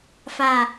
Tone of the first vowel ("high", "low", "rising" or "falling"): low